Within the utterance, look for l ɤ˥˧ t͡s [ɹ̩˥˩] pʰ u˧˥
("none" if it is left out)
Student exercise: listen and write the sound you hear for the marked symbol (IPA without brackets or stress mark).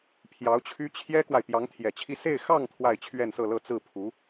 ɹ̩˥˩